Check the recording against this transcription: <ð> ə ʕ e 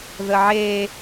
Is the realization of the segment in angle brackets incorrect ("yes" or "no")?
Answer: no